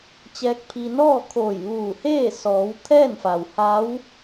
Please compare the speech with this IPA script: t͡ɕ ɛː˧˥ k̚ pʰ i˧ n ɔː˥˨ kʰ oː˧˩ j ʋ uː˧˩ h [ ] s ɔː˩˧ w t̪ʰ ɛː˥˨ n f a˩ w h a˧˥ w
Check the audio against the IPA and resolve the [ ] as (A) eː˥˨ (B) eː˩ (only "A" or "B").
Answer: A